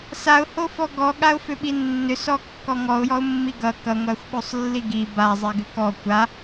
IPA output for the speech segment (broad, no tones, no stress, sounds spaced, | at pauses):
s a ʊ̯ h o f ɔ ɡ ɔ ɠ a ʊ̯ f ʏ ɓ i nː ʏ s ɔ kː ɔ ŋ ɔ ʊ̯ j ɔ ʊ̯ mː i ɡ ʌ k ʌ ŋʷ a xʷ ɓ o sˤ lː i ɡ i b a zˤ i ɡ ʏ k ɔ kʷ a